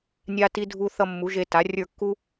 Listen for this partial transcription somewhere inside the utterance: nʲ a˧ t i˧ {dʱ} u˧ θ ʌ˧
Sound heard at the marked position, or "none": dʱ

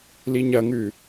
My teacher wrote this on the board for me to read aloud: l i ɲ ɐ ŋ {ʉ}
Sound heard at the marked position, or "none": ʉ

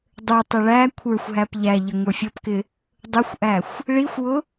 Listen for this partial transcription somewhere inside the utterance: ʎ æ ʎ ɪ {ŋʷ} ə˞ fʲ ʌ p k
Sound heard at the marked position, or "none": ŋʷ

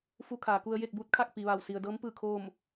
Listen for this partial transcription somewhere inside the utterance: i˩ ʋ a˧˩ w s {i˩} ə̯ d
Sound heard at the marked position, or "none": i˩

